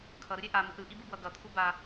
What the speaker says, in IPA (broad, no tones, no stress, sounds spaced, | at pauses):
kʰ ʌ ɾ ɯ ɾʲ ɛ ʔ a m ɯ ʔ ɾ ɯ ʔ i b ɯ b w ʌ ɡ ʌ t̪ʰ u b a